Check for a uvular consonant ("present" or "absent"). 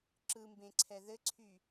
absent